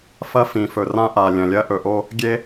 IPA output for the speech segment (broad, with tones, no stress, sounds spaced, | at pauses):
f ɐ˦ f ĩ˩ f ɵ˩ r ã˦ ʔ a˩ lʲ ɐ̃˩ lʲ ɐ˦ ʔ ɵ˨ ʔ o˦ | ɡʲ e˦